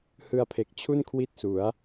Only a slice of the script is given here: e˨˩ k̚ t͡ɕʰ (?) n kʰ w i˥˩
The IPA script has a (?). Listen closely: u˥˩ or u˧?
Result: u˥˩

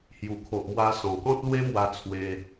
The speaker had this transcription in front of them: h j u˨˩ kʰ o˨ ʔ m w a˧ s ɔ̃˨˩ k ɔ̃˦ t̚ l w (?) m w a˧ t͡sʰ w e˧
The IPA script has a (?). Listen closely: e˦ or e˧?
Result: e˦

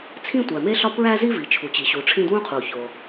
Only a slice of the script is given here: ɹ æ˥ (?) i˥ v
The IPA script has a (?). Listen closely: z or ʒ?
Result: z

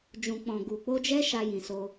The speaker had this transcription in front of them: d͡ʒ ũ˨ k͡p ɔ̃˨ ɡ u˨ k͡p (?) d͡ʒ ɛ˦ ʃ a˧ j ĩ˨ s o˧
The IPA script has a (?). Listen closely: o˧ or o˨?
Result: o˧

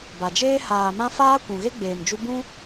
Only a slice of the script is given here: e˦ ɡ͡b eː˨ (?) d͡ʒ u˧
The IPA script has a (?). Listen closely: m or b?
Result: m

